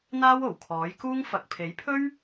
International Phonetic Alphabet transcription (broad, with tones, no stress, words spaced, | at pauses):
n̪aː˥wo˨˩w kʰɔː˨˥jkuː˥ŋ fɐ˨k̚ pʰe˨˥jpʰɵ˥ɥ